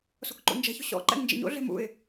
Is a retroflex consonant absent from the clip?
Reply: yes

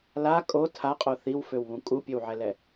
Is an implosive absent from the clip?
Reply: yes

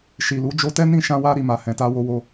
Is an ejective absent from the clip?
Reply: yes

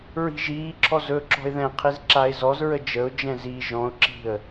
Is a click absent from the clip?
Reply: no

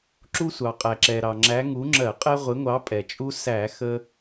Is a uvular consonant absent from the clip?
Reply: no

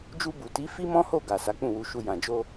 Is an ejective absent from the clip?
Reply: yes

